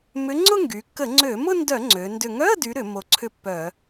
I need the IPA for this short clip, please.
m ʏ˨˥ ŋ͡ǀ ʊ˥˧ ŋ ɡ y˩˧ kː ə˧˩˧ ŋ͡ǀ ø˧˩˧ m ʊ˥˧ n d œ˧˩˧ ŋ͡ǀ ø˩˧ n d ʏ˨˩ ŋ œ˧˥˧ ə̯ d y˨˥ ɾ ʏ˧˩˧ m o˨˩ ǀʰ ʏ˥˧ pː œ˧˩˧

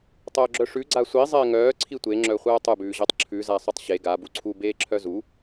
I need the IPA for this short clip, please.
tˤ œː ɡ͡ǁ œ ʂ ʉ ɡ͡ǀ a sʷ i zˤ ɪː ŋ œː ǀʰ i tʷ e ŋ͡ǁ œ χʷ œː tˤ ʉ b ʉː ʑ ɜ tˤ ǁʰ ʉ z a sˤ ʉ tˤ ɕ e ɡ a b u ǀʰ u b eː ǁʰ œ z u

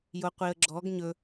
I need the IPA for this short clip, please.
j o qʷ i ə̯ ɡ͡ǁ ɔ ɡ ɲ ɵ

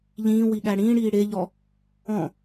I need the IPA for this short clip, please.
ʎ ĩː w i ɠ æ ɽ ĩː ɽ iː ɽ e ʎ ɔ | ɔ̃

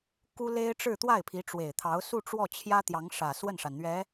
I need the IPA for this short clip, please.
k u˥ l e˥ ɪ̯ ʈ͡ʂ ɻ̩˥˧ t̪ w a˥˩ ɪ̯ pʰ i˧˥ ʈ͡ʂ w e˨˩ ɪ̯ t̪ʰ ɑ˧˥ ʊ̯ s u˥˧ ʈ͡ʂ w ɔ˥˩ t͡ɕʰ j ä˥ t̪ j ɑ˧˥ ŋ ʂ ä˨˩ s w ə˥˩ n ʂ a˩ n n̪ ɥ ɛ˧˥

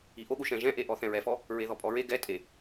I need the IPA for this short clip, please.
i ʔ o ɠ u ʃ ɛ̃ ʒ ɛ̃ ʔ e ʔ ɔ θ ɛ̃ ɹ ɛ f ɔ | ɹ e ð ɔ pʼ ɔ ɹ e ɡ ɛ tʼ e

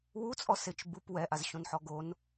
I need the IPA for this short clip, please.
w u t͡sʼ ɔ s ɪ t͡ʃ b u p w ɛ ʔ a z ɕ õ n ħ ɔ ɡ o n

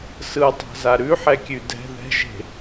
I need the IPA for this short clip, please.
s ɯ tˤ a̤ z a ɾ ʉ ħ ɛ kʲ ʉ d ɛ̤ ð ɛ̤ ʒ e̤

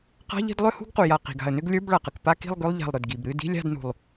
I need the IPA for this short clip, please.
q a̤˧˥˧ ʎ i̤˥˧ d lˠ ʏ˥˧ h ṳ˥˧ ɡ q u˩ j a˧˩ q i̤˩ ɡ a̤˧˩ ə̯ n ʏ˥˧ ɡ lʲ ə˞˧˥˧ b ɭ a˩ q ə˩ k p a˥˧ k i̤˥˧ lˠ ɡ ʏ˧˥˧ lˠ ʎ a̤˧˩ lˠ ɾ ʏ˩ d ɡ i˩ b ɾ ɨ˧˥˧ d i̤˧˥˧ lʲ a̤˥˧ d n ṳ˧˩ lˠ

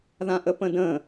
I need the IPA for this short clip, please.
ð ã ʔ ə p ə̃ d ə̃

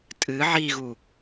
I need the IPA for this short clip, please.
tʼ ɨ ʕ i ɣ u

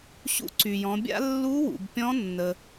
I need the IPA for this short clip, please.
ɕ ṵ˧˥ ǀ y˩ j ɔ̃˩˧ bʲ a̰˥ lː u˧˥ w ṵ˩ b pʲ ɔ̃˧˥ nː ə˩

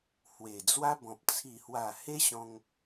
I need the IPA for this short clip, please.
h w e˨˩ d͡z w a˦ b ɔ̃˨ p̚ t͡sʰ i˨˩ h w a˨˩ h e˦ ɕ ɔ̃˧ ŋ

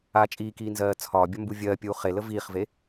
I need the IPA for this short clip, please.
aː t͡ʃʼ iː k iː n z ɜː t͡sʰ ɒː bʲ ɒ m b u vʲ ɜː pʲ uː χ e l ə v iː χ v e

